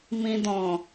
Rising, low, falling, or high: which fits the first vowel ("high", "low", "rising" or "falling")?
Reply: low